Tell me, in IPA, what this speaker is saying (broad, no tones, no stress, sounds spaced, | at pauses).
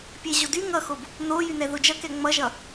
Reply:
pʲ e ʑ o d y ŋ ʌ x o b | n o j y n ɛ ð o d͡ʒ ʌ k ɛ ŋ͡m ʌ ʒ ʌ